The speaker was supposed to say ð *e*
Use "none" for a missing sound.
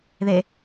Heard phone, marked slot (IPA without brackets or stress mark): e